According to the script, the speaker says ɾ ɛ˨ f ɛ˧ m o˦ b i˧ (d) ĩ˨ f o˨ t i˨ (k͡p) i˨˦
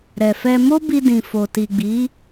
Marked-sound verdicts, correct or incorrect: correct, incorrect: ɡ͡b

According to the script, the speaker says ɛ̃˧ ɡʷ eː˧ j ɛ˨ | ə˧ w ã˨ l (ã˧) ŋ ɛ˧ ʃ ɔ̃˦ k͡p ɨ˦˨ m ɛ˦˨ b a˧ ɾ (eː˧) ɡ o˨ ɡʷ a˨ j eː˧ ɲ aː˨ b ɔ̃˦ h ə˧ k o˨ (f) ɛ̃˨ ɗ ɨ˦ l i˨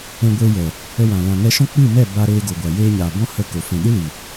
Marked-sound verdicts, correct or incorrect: incorrect: ã˨, correct, correct

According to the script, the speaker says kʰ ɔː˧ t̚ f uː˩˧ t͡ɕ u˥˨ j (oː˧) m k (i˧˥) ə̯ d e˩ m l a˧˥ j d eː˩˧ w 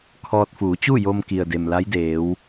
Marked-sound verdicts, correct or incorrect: incorrect: o˧, incorrect: i˩

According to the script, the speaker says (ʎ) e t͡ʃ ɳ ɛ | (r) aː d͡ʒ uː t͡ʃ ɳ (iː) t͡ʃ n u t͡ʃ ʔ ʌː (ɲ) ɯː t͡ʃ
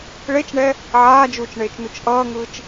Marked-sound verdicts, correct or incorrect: incorrect: ɭ, incorrect: ʕ, incorrect: eː, incorrect: ŋ

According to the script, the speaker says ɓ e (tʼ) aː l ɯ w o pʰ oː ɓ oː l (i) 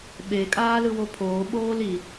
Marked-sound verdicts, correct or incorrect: incorrect: kʼ, correct

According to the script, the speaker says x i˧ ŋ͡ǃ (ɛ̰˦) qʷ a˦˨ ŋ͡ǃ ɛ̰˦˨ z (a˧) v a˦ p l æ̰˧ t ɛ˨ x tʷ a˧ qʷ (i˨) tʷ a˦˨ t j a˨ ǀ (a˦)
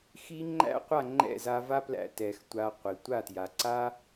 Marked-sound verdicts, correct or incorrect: incorrect: æ̰˦, correct, correct, correct

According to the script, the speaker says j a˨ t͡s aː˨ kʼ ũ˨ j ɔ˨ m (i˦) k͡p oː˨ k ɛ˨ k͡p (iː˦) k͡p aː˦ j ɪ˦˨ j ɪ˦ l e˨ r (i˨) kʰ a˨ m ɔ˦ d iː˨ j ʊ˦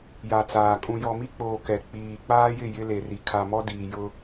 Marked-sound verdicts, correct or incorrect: correct, incorrect: iː˨, correct

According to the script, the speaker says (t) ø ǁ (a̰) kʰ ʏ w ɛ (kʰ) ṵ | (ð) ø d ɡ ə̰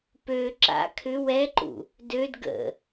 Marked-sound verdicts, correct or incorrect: incorrect: p, correct, incorrect: ǃ, incorrect: d

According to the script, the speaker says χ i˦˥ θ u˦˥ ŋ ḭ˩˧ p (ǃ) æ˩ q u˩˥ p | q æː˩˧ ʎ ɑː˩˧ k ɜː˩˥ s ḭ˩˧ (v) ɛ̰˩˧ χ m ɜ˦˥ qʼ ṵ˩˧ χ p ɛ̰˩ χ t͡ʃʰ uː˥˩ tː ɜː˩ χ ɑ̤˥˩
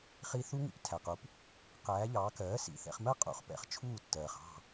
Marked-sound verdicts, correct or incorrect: incorrect: tʰ, incorrect: θ

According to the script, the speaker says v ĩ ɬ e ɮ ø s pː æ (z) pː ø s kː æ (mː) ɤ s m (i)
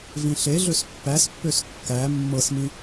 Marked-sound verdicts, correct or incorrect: incorrect: s, correct, incorrect: ĩ

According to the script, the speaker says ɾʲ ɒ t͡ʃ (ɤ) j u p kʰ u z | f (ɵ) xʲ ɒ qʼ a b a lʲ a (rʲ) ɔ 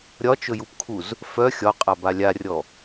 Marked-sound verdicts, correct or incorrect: incorrect: ɵ, incorrect: œ, correct

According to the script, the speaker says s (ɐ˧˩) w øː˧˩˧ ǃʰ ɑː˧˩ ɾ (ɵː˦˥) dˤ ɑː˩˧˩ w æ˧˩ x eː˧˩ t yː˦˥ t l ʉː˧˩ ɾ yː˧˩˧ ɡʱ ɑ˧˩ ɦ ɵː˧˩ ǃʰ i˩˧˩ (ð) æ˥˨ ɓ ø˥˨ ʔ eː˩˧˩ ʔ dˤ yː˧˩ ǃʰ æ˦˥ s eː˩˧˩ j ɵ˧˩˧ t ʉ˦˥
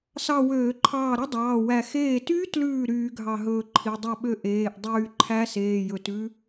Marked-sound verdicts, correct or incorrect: incorrect: ɑ˧˩, incorrect: ɵ˦˥, incorrect: dˤ

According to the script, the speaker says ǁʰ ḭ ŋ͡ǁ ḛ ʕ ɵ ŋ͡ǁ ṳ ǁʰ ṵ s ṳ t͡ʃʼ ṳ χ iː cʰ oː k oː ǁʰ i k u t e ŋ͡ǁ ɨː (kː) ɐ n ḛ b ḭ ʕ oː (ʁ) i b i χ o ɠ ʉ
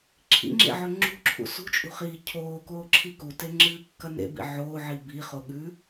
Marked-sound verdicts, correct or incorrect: correct, incorrect: ʕ

